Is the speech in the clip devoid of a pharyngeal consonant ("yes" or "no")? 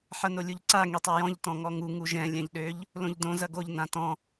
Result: no